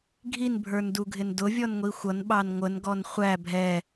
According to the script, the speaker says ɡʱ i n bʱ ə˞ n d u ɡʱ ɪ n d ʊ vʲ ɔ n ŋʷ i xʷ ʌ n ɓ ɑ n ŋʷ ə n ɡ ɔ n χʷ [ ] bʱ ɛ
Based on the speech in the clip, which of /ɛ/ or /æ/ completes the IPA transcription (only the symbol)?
æ